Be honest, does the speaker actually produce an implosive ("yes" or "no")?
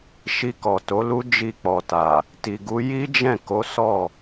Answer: no